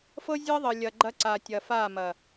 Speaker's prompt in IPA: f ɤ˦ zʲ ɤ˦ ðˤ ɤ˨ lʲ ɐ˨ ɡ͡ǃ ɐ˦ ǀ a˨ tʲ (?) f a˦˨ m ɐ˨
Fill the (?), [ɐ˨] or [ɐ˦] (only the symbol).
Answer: ɐ˨